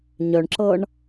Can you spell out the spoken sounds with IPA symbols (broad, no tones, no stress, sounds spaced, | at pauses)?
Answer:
ɲ œ ɳ ǁ ɤ ɳ